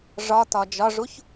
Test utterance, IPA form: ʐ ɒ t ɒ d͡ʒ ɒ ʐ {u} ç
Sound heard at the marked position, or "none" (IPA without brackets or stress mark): u